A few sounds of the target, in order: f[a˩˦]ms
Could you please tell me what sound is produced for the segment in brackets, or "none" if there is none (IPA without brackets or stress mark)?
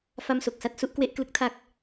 a˥˩